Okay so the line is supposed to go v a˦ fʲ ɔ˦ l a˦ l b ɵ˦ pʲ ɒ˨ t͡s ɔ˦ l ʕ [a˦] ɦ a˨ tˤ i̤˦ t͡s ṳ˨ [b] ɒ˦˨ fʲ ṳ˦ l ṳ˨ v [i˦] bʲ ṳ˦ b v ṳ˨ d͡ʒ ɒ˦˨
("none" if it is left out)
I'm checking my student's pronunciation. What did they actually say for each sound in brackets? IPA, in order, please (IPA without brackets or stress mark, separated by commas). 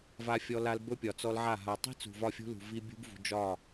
a˦˨, v, i˦